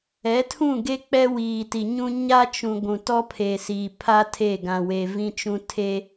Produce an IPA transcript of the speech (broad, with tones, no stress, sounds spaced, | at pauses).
ɛ˨˦ tʰ ũ˦˨ ɡ e˦ k͡p ɛ˦ w iː˨ t i˨ ɲ ũ˦ ɲ a˦ t͡ʃ ũ˨ ɡʷ ũ˨ t ɔ˦ pʰ e˨ s iː˨ pʰ a˦ tʰ e˦˨ ɡ ã˨ w e˨ v ĩ˦ t͡ʃ ũ˦ tʰ e˦